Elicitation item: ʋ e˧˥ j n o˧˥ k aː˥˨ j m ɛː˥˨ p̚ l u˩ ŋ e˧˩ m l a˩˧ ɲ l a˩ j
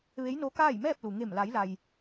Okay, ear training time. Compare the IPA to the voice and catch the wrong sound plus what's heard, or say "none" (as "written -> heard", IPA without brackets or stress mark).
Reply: ɲ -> j